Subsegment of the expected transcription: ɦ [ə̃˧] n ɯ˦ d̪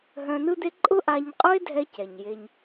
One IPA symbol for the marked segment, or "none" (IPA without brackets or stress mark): œ̃˧